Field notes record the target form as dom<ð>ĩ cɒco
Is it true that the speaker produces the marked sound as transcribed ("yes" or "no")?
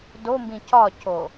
no